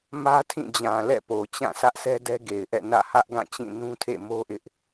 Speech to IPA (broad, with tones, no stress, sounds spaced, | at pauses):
m ä˦ tʰ ĩ˦˨ d͡ʑ ã˨ l ɛ̰˦˨ p o˨ t͡ɕ ã˦˨ s ä˦ ʔ s ɛ˦ d ɛ˦ ɡ e˨ ɪ̯ ʔ ɛ̰˦˨ n ä̰˦˨ h ä˦ ʔ ɡ ã˦˨ t͡ɕ ĩ˦˨ n ũ˦ tʰ ḛ˦˨ m o˦ ʔ ɪ˦ ʔ